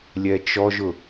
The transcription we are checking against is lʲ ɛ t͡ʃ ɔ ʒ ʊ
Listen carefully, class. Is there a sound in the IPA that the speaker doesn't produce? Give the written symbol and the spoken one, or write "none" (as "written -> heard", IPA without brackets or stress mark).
none